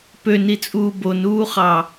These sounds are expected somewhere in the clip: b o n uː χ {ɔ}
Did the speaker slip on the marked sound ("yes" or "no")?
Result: yes